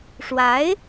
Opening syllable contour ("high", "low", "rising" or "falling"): rising